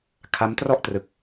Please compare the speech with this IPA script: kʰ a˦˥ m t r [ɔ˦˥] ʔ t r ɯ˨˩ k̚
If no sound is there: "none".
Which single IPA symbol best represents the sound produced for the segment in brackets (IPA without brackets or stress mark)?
ɔ˥˩